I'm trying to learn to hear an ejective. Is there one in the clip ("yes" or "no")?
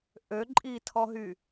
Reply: yes